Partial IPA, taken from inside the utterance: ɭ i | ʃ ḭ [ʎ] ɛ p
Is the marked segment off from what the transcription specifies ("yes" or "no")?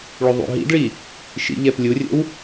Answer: no